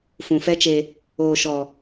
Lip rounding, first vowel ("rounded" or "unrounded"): rounded